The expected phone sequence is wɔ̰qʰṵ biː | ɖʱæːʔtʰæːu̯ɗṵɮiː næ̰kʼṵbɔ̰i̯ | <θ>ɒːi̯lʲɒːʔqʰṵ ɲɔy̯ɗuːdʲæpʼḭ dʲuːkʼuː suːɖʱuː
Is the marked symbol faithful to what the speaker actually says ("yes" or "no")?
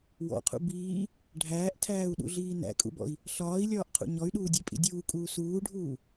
no